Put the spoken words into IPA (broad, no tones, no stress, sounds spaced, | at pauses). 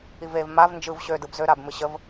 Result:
i v e v m a v n d͡ʒ ɯ v ɕ ø d ɯ b z ø ɾ a b m ɨ ɕ ə v